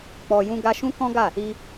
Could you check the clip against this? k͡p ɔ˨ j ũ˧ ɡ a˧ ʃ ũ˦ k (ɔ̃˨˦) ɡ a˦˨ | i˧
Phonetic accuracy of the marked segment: incorrect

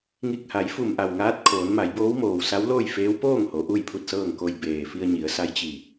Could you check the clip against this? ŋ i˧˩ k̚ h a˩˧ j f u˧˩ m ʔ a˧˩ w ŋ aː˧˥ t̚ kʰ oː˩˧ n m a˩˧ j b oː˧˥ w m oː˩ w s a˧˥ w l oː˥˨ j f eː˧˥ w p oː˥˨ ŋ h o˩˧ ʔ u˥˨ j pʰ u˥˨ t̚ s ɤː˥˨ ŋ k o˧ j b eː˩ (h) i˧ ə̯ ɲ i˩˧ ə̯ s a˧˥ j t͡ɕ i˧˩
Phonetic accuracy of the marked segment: incorrect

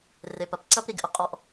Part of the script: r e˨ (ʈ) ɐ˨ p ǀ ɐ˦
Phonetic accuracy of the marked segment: incorrect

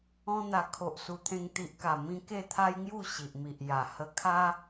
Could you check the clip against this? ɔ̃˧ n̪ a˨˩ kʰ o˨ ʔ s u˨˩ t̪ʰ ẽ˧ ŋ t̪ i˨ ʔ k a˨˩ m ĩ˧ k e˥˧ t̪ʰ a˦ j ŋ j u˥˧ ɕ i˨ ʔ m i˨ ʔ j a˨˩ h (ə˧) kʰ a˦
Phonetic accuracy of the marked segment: correct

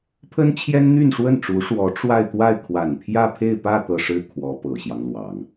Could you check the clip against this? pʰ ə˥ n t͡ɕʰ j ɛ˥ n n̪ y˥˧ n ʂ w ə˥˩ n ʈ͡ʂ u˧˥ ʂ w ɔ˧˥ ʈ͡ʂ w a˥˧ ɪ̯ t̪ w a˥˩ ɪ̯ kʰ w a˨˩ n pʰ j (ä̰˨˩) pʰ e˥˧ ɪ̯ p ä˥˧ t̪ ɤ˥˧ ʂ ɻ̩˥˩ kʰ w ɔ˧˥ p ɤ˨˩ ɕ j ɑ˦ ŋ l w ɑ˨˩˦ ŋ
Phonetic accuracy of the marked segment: incorrect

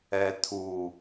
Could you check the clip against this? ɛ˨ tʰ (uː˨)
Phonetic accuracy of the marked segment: correct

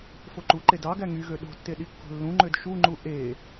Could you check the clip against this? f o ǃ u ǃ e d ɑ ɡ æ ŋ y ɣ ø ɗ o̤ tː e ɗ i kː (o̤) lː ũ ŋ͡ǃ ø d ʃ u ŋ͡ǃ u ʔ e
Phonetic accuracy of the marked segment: correct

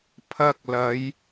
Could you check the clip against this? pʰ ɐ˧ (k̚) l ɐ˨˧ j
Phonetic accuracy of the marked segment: correct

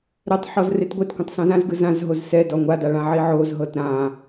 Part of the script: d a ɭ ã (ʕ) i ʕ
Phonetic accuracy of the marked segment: correct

